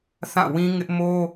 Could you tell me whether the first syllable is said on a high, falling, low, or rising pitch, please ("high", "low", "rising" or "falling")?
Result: falling